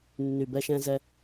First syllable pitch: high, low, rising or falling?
low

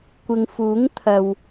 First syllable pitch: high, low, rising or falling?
low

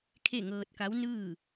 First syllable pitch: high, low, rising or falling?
falling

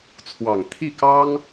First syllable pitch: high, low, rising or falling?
low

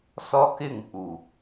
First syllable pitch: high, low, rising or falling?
high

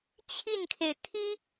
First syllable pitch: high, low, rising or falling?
falling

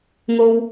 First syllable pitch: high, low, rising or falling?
high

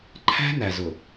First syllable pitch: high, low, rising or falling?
high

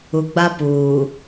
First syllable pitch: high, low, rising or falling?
low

